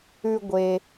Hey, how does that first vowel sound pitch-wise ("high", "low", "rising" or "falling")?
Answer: low